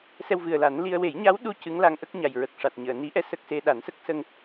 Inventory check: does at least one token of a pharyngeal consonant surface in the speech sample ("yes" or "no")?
no